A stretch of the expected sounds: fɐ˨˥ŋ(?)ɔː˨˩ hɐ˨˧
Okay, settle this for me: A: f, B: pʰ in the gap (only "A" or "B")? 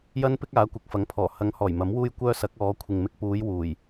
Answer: B